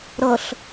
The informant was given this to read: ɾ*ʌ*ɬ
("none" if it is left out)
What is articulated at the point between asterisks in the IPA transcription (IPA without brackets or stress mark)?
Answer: ʌ